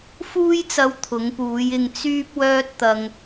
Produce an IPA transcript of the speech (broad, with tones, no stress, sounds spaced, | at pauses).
f uː˥ j t͡s ɐ˧ w t̪ʰ ʊ˨˧ ŋ p uː˨˧ j ɪ˧ ŋ t͡s yː˥ p̚ w œː˥ t̚ t̪ ɐ˧ ŋ